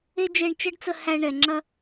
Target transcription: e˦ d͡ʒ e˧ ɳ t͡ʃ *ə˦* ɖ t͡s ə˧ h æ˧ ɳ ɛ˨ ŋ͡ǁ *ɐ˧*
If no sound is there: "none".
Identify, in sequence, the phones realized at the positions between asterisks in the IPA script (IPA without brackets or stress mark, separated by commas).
ə˦, ɐ˧